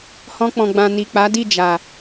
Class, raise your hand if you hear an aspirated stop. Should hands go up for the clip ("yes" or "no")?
no